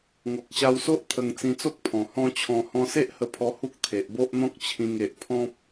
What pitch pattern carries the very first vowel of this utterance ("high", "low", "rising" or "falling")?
low